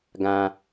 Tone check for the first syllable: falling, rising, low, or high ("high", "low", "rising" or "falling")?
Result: high